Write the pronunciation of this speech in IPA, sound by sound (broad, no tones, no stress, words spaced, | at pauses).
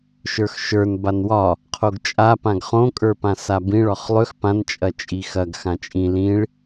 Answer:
ʃə˞xʃə˞n banwɒ | qʰoɡt͡ʃʼa pãɡχõ kʼə˞pãsabĩ ɭɒχlˠʏx pãn t͡ʃʼɐt͡ʃʼixɐɡ xãt͡ʃʼĩ lĩɭ